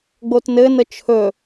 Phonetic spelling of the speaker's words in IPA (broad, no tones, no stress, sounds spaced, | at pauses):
ɡ͡b o t n ɘ n ə t͡ʃʰ ɵ